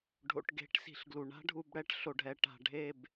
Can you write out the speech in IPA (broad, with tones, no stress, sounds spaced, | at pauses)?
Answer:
ɖʱ o̰˨ ʈ ɡ e̤˨˦ ʈ s i̤˨ ɬ ɡ l u˨ ɳ a̤˦ ɖʱ u˨ b ɽ ɛ˦ ʈ ɬ o˨ ɖʱ ɛ˨ ʈ a̤˨ ɖʱ e˦˨ b